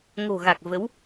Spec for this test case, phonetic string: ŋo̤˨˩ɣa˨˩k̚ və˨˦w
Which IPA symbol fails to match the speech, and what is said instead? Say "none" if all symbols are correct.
none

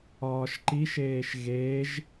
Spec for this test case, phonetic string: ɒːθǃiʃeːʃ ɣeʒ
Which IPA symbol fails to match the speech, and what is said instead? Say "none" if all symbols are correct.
θ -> ʃ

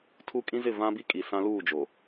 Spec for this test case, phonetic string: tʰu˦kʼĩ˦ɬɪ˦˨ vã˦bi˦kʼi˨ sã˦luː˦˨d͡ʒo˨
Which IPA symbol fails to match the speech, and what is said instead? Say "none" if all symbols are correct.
ɬ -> z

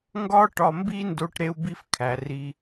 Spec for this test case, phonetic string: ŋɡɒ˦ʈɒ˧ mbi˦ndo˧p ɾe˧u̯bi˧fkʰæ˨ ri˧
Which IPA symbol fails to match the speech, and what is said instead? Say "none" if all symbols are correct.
p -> ʈ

